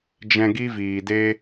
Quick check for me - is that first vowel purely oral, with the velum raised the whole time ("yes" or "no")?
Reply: no